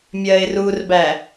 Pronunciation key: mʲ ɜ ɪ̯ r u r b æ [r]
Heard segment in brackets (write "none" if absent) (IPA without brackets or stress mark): none